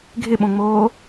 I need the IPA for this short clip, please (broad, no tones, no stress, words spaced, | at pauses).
ɡʱɪɓõŋ͡moː